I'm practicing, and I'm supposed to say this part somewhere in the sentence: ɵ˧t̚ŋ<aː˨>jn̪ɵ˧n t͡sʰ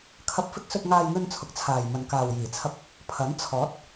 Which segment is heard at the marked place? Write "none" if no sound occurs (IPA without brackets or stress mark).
aː˧